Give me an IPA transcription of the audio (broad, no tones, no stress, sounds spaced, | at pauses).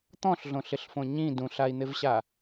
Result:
t̪ ɔ̃ ɬ ɮ õ ɬ ɪ ɬ f õ ɲ ĩ d ũ ɬ a i̯ n̪ ɪ v ɕ a